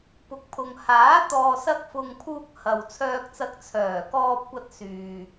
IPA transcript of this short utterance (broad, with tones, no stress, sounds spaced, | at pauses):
p ʊ˨ k̚ pʰ ʊ˨ ŋ h aː˨˥ t̪ ɔː˨ s ɐ˧ k̚ f ʊ˨ ŋ pʰ uː˧ k̚ h ɐ˨ w t͡sʰ œː˧ k̚ t͡s ɐ˧ k̚ t͡sʰ œː˨˩ k ɔː˧ p̚ kʷ ɐ˧ t̚ s yː˨